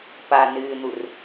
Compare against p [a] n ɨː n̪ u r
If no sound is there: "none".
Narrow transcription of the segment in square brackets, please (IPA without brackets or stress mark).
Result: a